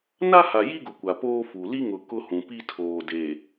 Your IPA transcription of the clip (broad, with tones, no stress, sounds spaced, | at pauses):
n a˦ h a˨ j i˦ ɡ ʊ˨ kʷ a˨ p oː˦ f u˨ l i˦ ŋ ʊ˨ k ʊ˦ h ũ˨ p i˦ tʰ oː˨ d e˨